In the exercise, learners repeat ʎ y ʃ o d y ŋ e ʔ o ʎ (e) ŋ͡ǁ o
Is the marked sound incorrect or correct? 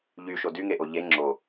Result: correct